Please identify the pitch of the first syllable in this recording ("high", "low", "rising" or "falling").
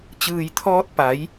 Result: low